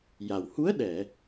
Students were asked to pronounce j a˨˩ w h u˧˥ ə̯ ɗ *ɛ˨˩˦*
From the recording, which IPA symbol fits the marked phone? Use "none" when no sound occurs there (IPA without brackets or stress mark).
ɛ˨˩˨